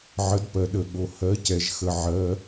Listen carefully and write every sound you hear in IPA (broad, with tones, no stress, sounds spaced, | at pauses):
ʕ ə˨˥ d p ɜ˨ ɗ ə˨ ɠ o˨ h ɜ˨˥ c ɛ˨ ʒ x ə˨ ʕ ɜ˨˥